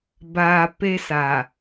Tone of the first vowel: low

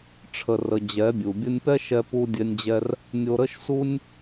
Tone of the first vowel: low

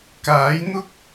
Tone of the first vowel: rising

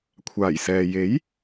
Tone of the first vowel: low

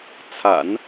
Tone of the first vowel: low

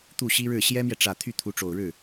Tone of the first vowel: falling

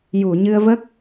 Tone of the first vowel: low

